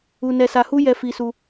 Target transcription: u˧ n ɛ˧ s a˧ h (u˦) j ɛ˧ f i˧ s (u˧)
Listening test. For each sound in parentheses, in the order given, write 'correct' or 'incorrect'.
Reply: correct, correct

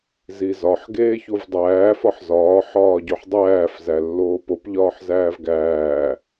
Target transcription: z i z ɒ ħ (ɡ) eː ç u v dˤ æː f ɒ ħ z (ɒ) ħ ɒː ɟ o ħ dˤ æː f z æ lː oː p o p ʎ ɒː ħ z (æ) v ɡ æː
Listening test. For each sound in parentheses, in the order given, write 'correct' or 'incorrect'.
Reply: correct, incorrect, incorrect

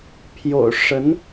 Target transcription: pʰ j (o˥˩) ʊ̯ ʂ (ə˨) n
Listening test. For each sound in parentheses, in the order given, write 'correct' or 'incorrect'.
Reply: incorrect, incorrect

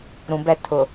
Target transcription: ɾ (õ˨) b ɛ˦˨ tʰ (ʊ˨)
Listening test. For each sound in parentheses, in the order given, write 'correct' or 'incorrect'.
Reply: incorrect, correct

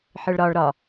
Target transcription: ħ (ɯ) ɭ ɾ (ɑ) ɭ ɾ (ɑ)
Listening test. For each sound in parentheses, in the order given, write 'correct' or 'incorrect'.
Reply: correct, incorrect, incorrect

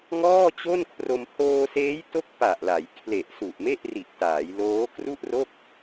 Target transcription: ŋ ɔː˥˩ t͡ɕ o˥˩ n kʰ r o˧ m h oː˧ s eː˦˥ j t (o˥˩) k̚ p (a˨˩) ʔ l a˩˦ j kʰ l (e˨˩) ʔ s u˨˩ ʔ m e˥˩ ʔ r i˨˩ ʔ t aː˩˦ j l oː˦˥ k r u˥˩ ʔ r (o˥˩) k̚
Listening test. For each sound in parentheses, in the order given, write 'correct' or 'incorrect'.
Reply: incorrect, correct, correct, correct

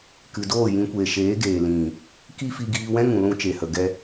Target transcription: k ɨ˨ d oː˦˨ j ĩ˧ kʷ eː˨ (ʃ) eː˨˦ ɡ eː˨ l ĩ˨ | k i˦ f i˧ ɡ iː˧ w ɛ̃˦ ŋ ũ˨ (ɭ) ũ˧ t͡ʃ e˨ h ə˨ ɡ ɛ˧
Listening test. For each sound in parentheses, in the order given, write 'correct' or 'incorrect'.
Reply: correct, incorrect

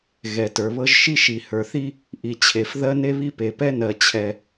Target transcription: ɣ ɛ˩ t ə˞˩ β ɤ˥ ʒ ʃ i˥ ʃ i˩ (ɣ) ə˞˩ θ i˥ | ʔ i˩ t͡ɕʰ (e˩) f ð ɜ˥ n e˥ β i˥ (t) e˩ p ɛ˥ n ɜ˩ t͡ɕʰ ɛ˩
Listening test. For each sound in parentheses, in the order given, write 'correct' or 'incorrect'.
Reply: incorrect, correct, incorrect

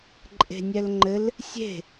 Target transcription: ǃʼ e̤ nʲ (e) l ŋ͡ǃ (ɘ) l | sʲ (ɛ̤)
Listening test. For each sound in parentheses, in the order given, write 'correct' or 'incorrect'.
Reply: incorrect, correct, incorrect

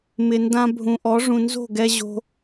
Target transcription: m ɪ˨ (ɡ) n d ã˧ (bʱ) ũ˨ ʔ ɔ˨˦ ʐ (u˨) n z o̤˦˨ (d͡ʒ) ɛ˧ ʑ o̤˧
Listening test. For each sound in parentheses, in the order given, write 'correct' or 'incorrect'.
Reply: incorrect, correct, incorrect, incorrect

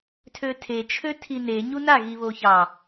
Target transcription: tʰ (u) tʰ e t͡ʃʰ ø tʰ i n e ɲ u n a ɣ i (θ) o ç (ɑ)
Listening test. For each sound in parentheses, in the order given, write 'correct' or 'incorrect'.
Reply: incorrect, incorrect, correct

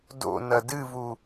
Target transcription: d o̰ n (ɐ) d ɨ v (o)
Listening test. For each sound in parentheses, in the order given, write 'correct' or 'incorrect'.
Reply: correct, incorrect

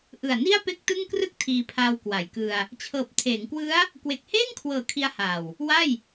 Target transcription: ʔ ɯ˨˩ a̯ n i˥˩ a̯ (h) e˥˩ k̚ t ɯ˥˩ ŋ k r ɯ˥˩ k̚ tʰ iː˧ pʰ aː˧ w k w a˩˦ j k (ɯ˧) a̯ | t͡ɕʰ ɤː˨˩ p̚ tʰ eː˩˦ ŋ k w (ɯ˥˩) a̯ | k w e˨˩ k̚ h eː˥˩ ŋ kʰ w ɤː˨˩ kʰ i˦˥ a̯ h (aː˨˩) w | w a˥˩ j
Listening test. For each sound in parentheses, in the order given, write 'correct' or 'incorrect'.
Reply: incorrect, correct, incorrect, correct

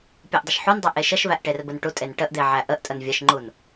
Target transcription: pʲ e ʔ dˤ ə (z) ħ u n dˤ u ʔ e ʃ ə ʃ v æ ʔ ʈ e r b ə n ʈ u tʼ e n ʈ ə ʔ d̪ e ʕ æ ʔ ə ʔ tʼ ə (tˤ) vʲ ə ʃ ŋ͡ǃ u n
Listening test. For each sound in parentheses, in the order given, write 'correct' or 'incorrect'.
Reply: incorrect, incorrect

